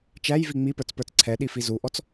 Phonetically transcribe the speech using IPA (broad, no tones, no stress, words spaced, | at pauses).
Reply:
t͡ʃæjvi ŋ͡mipə˞t͡spə˞t͡s ǀʰɛɗifi zuʔɔt͡s